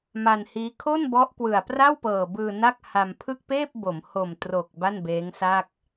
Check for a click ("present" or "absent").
absent